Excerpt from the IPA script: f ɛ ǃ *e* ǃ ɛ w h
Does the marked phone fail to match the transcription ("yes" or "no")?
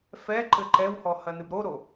yes